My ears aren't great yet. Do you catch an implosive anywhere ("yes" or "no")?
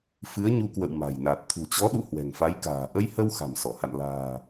yes